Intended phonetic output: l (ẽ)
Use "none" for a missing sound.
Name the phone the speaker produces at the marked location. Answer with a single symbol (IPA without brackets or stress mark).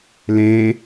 ẽ